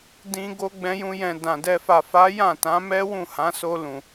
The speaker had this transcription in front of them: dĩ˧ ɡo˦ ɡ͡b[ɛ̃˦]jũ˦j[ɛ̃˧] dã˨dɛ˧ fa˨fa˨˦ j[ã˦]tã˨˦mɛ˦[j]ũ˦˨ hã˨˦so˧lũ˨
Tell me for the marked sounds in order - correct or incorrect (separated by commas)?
correct, correct, incorrect, incorrect